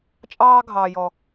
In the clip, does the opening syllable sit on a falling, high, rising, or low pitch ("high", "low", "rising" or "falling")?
high